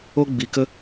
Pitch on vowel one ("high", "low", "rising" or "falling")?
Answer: high